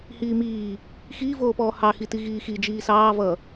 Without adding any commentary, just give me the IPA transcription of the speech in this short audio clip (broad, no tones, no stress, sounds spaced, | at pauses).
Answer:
h iː m iː | x iː v oː p ɔː h ɑ x i t i ɣ iː x i d͡ʒ iː s ɑː v ʌ